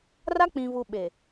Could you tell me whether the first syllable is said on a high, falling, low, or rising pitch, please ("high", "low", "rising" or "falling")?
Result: high